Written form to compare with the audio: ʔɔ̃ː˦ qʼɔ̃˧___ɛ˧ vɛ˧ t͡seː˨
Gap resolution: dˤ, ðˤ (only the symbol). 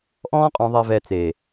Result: ðˤ